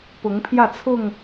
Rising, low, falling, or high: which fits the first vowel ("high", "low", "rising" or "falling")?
rising